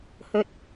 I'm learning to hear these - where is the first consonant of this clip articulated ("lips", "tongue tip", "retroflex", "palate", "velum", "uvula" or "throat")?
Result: throat